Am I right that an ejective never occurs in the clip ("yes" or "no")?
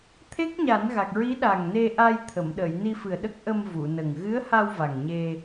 yes